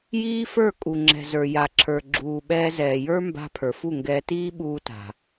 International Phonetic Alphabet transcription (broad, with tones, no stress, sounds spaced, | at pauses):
j iː˦ f ə˞˦˨ kʼ u˨ ŋ͡ǁ ɛ̤˨ z ə˞˨ j a˨ ǁʰ ə˞˨ ɡ͡ǁ uː˨ ɓ ɛː˧ z ɛː˨ j ə˞˦ m b a̤˧ pʰ ə˞˨ f u˦˨ ŋ ɡ ɛː˧ t iː˦ ɓ uː˧ t a̤˨